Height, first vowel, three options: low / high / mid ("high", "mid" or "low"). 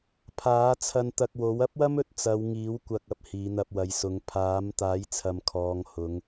low